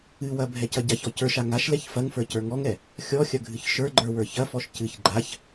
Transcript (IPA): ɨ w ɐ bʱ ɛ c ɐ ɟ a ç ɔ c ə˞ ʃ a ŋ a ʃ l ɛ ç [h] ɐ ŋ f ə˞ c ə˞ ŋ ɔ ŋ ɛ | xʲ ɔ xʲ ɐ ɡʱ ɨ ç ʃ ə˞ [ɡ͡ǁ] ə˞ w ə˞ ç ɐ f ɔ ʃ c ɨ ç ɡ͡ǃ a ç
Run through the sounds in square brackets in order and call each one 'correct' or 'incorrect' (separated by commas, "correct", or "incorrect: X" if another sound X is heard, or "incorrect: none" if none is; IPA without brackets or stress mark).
incorrect: f, incorrect: ɡ͡ǃ